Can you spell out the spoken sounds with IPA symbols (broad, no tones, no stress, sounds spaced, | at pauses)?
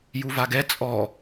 j u v a ɡ ɛ t͡sʼ ɔ